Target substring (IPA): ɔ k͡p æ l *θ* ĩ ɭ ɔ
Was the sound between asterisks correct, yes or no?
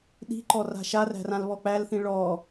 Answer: yes